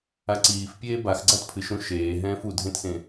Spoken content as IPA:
aǀiːfpʲeː bax ɡ͡ǀatpʰɨʃɾũ ʃeː ɦɛ̃ːfudʱẽtsẽ

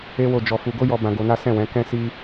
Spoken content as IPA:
e˦wo˦˨d͡ʒɔ˧fu˧ ɡo˦jɔ˧ bã˧ɡo˧na˦ sɛ̃˦˨wɛ̃˨˦ kɛ̃˦ si˦

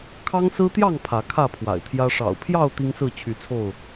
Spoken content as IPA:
kʰɑ˦ŋsɹ̩˦t̪jɑ˥˨ŋ pʰä˨˦kʰä˥˨pʰwa̰˨˩ɪ̯t̪ʰjä˦ ʂɑ̰˨˩ʊ̯pʰjɑ˥˨ʊ̯ t̪i˦ŋsɹ̩˥˨t͡ɕʰy˨˦t͡sʰo˥˨ʊ̯

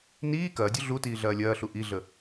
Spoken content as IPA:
niː kɐːdʲu ɮutiː ɮɐːlʲɐːɬu ʔiɮə

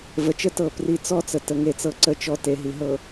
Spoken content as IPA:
və˨t͡ʃə˦tɤ˦˨ pri˨ t͡sɔ˦t͡sə˨ tə˨ŋe˨t͡sɤ˨ ǀə˨t͡ʃɔ˨ te˨ɦi˨ɦɤ˨

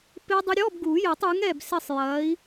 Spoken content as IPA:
pɪ˦˥dˤɪ˦˥ ɾʲɔ˧˥˧bɡu˨˩˦jɛ˨˩˦tˤ ɯ˨˥ŋɛ˦˨b sɪ˦˨sˤ jɐ˨˥i̯

